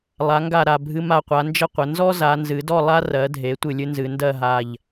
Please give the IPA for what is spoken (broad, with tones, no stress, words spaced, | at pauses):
lˠa˩˧ŋɡa˧˩ ɾa˧˩bʱɨ˧ma˧˩qʷa˩˧ nd͡ʒə˥˧qʷə˩˧ nzɔ˥za˩˧ nzɨ˩˧dɔ˥˧ lˠa˥ rɜ˩˧dʱe˩˧ tʷɨ˧˩lʲɨ˥nzɨ˩˧ ndɜ˥˧ɦa˧˩ʎ